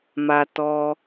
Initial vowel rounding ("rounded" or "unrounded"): unrounded